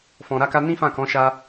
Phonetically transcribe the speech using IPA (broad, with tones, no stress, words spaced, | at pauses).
fɔ̃˨ɾa˧ka˧ nĩ˦ fã˦˨kɔ̃˨˦ʃa˧